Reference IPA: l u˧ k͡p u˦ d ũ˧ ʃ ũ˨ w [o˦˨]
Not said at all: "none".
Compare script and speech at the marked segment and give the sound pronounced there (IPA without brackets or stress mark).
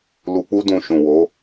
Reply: o˨˦